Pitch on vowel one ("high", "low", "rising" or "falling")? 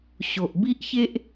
low